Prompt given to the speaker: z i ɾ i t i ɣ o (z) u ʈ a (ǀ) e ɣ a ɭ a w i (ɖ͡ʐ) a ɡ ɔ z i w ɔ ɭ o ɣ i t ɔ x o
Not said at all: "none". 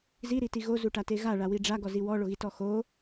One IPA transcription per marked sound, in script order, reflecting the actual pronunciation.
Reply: z, t, ɖ͡ʐ

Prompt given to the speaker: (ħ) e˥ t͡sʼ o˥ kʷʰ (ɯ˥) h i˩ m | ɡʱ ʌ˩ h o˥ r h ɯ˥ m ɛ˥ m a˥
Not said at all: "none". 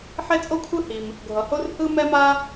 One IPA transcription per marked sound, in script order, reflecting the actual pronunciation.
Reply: ħ, ɯ˥

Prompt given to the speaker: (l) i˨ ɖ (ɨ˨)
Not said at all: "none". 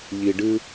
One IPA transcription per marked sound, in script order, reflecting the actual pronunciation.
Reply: ʎ, ɨ˦

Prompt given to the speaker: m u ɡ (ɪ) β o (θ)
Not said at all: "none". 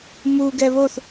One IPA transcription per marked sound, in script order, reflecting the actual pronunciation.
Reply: ɛ, θ

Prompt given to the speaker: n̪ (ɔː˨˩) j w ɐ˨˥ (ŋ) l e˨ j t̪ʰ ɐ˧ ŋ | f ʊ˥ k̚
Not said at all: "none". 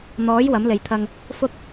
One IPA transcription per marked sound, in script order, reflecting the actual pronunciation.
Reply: ɔː˨˥, m

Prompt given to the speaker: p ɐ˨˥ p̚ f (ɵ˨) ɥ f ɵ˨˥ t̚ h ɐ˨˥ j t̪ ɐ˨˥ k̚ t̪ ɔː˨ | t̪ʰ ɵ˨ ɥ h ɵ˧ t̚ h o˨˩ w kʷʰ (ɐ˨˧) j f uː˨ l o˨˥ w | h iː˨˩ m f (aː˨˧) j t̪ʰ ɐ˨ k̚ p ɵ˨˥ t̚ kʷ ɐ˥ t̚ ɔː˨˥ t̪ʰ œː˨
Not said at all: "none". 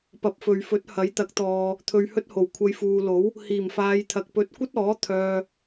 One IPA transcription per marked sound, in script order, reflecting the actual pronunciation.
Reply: ɵ˨, ɐ˨˧, aː˨˧

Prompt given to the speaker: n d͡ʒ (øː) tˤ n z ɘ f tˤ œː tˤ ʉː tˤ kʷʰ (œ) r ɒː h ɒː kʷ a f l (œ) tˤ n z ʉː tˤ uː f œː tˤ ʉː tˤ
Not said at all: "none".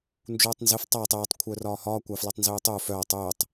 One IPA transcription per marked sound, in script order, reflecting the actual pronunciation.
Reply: uː, œ, œ

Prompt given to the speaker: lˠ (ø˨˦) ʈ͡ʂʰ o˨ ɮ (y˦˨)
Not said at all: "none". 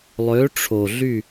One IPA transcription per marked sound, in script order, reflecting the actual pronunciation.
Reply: ø˨˦, y˦˨

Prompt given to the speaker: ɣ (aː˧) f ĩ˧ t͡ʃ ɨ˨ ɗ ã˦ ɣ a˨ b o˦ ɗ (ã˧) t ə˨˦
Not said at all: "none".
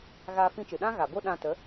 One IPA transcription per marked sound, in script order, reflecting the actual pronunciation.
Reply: aː˧, ã˧

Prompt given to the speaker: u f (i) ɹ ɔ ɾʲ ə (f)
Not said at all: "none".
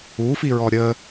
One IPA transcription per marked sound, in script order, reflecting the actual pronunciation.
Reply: i, none

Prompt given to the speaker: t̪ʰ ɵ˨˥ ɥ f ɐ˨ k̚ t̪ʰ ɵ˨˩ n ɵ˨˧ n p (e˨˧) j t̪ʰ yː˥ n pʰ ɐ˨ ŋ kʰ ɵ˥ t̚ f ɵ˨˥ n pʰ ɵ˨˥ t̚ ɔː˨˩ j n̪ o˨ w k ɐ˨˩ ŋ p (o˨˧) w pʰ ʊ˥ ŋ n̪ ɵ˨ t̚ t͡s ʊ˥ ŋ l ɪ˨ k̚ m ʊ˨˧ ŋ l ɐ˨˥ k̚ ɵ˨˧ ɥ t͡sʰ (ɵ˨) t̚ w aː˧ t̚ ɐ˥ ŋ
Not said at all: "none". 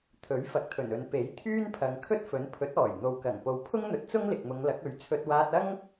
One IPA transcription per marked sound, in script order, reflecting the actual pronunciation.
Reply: e˨˥, o˨, ɵ˧

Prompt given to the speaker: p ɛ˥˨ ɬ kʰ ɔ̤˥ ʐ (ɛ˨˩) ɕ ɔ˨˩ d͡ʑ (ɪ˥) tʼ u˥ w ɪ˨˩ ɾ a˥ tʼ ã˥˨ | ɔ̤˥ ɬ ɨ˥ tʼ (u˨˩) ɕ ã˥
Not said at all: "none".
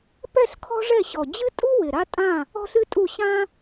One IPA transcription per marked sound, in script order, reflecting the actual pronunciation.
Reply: ɛ˥˨, ɨ˥, u˥˨

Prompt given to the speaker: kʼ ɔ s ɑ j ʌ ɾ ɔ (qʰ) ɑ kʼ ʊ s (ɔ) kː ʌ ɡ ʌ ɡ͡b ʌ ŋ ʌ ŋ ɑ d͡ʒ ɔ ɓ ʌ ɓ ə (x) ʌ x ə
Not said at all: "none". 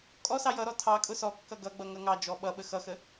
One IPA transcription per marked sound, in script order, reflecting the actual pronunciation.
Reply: tʰ, ɔ, x

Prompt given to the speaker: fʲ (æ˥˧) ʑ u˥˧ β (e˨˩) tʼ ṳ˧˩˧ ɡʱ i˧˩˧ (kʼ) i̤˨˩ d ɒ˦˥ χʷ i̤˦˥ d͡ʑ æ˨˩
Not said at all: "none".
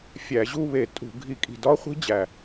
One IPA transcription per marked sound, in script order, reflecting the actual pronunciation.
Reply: æ˧˩˧, e˧˩˧, kʼ

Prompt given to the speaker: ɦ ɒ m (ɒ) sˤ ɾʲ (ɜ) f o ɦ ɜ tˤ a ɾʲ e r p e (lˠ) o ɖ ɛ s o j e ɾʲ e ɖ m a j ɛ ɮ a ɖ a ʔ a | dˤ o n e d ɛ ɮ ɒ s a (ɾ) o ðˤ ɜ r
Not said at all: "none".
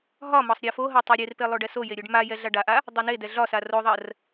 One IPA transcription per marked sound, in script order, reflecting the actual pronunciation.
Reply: ɒ, ɜ, lˠ, r

